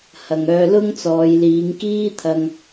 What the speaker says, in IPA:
h ɐ˨ ŋ œː˧ l ʊ˥ ŋ t͡s ɔː˨˧ j l iː˨˧ ŋ k iː˥ t̪ʰ ɐ˧ ŋ

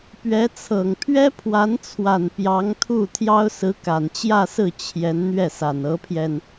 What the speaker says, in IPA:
p ɥ ɛ˧˥ t͡sʰ ɤ˨˩ ŋ pʰ ɥ ɛ˥ pʰ w a˧˥ n t͡sʰ w a˨˩ n p j ɑ˧˥ ŋ t̪ʰ u˥˩ t̪ʰ j ɑ˥ ʊ̯ s ɹ̩˧˥ k a˨˩ n t͡ɕ j ä˥˧ s ɹ̩˥˩ t͡ɕʰ j ɛ˧˥ n n̪ ɥ ɛ˥˩ s a˨˩ n ɤ˧˥ pʰ j ɛ˧ n

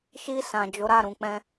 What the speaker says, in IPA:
ʃ i˧ s ã˨ d͡ʒ o˨˦ ɾ a˦˨ ɾ ũ˨ k͡p ɛ̃˧

